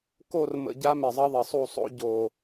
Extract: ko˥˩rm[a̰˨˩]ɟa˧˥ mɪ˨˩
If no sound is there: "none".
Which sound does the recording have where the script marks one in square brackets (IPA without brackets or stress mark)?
ə̰˨˩